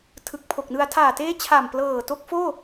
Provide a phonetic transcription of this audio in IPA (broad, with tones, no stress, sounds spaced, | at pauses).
tʰ ɯ˨˩ k̚ pʰ o˨˩ k̚ n ɯ˧ a̯ tʰ aː˨˩ t eː˦˥ t͡ɕʰ a˨˩ m p l ɤː˨˩ t o˦˥ k̚ f oː˥˩